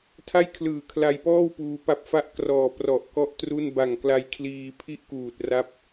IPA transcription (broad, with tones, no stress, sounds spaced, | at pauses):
tʰ a˥˩ j kʰ l ɯː˨˩ kʰ l a˧ j p ɔː˥˩ w p uː˧ p a˥˩ p̚ f a˦˥ ʔ k r ɔː˨˩ p r ɔ˨˩ ʔ k ɔ˥˩ ʔ t r u˥˩ n b a˨˩ ŋ k l a˧ j kʰ l iː˧ pʰ i˥˩ ʔ k uː˨˩ t̚ r a˥˩ p̚